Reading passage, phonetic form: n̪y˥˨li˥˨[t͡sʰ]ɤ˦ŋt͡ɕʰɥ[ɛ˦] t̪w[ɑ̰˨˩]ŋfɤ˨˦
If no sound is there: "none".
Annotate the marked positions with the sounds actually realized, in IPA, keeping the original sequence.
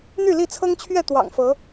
t͡sʰ, ɛ˥˨, ɑ̰˨˩

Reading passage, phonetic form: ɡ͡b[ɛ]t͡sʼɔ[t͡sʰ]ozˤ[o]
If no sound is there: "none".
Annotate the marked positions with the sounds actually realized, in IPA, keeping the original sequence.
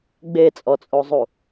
e, t͡sʼ, u

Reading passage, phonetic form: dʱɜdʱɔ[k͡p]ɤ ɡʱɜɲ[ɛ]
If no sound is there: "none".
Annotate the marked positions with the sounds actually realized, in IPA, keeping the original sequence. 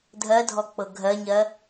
k͡p, ɜ

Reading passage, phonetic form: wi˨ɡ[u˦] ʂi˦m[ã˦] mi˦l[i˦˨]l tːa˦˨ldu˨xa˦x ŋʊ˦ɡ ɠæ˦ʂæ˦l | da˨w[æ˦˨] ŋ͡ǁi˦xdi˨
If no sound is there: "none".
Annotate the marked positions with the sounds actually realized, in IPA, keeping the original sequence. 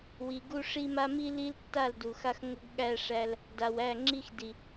u˦, a˦, i˦, æ˦˨

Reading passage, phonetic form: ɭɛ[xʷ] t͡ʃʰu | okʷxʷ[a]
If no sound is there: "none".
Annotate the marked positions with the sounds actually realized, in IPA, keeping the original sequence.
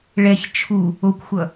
ç, ʌ

